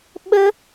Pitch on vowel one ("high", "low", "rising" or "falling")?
high